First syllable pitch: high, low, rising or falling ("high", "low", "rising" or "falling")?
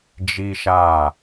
high